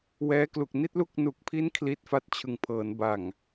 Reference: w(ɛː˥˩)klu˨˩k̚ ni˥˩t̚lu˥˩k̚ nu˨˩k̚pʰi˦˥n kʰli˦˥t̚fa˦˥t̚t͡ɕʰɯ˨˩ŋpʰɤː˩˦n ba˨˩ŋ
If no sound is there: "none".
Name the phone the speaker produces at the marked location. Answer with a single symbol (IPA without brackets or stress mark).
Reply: ɛː˦˥